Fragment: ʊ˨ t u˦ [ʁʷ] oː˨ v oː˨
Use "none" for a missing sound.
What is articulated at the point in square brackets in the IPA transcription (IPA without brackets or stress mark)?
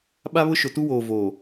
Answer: w